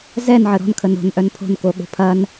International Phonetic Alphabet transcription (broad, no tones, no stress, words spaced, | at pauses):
zɛnʕə ɾɔ̤n kʰənɾo̤n ʔœnpʰo̤nko ɠo̤pʰɐn